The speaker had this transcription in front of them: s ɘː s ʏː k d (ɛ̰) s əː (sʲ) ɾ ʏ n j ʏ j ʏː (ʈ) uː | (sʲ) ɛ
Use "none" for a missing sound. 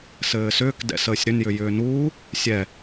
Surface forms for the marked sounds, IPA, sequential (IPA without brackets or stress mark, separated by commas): ɛ̰, sʲ, n, sʲ